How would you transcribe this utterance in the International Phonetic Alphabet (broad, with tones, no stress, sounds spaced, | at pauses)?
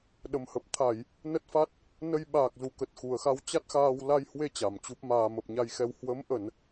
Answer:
ɗ ə˨˩ m h ə˨˩ p̚ t̪ʰ a˧˩˨ j | n ə˦˥ t̚ f a˦˥ t̚ | n ə˧ j ɓ aː˨˩ k̚ z u˧˩ k ə˨˩ t̚ x u˨˩ ə̯ x a˧ w t͡ɕ a˦˥ t̚ x aː˧ w l a˧ j h w e˧ t͡ɕ a˨˩ m t͡ɕ u˦˥ p̚ m aː˧ m ə˨˩ p̚ ɲ a˧ j x ɛ˧ w h w ə˨˦ m ʔ ə˧˩˨ n